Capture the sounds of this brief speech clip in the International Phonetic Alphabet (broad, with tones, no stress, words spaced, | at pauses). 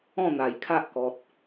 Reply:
ɔ̃˥˧n̪a˨˩jkʰa˦ʔkɔ˨t̚